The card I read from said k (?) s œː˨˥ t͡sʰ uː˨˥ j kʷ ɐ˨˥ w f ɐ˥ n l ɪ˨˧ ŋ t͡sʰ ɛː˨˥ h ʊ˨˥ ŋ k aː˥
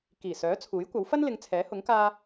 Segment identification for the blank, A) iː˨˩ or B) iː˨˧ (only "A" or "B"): A